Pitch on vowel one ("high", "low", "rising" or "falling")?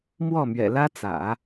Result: falling